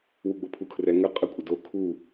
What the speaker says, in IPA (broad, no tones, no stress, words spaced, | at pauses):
wuɡ͡bopʰukʰrɛ ŋə qʼəkʷʼə do kʰu